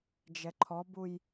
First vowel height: mid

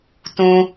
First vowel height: high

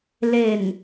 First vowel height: mid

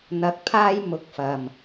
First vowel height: low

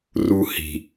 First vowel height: high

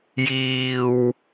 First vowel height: high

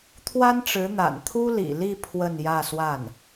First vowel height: low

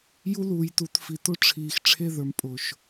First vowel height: high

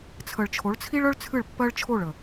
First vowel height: mid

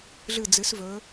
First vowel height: high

